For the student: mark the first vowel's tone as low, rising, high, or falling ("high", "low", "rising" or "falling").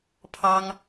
high